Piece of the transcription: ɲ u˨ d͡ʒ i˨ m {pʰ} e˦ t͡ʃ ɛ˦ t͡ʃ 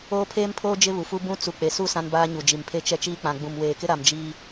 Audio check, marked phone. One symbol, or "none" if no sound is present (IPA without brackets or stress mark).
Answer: pʰ